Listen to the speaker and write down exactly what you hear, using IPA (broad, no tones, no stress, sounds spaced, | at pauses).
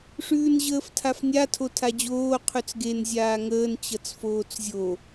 ʂ ʉː n ʑ əː f tʰ a f nʲ a tʰ o tʰ a d͡ʑ oː qʰ ʉ t͡s ɡ e n zʲ aː ŋ əː n t͡ɕ ʌ t͡s f oː t͡s zʲ o